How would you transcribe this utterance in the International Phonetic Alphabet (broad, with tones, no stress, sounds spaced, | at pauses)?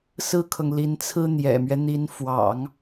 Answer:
s ɹ̩˥ kʰ ɤ˨ ŋ l i˧˥ n t͡sʰ ɹ̩˥ n̪ j ɛ̰˨˩ m ɥ ɛ˦ n̪ i˧˥ n f w ɑ̰˨˩˦ ŋ